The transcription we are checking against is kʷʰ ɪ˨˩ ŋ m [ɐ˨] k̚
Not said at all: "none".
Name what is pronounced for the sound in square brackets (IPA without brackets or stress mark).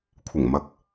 ɐ˨